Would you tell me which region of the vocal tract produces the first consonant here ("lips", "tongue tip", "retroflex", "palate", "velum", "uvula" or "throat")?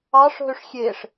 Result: retroflex